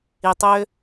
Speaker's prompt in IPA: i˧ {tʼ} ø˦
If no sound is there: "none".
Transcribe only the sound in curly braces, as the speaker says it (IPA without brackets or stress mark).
tˤ